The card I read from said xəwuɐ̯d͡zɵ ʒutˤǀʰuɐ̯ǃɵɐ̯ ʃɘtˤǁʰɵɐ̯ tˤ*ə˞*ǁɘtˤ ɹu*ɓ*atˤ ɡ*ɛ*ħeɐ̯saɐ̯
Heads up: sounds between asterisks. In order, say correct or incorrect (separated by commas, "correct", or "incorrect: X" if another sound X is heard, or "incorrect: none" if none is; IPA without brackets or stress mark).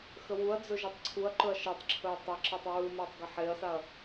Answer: incorrect: ə, incorrect: m, incorrect: ə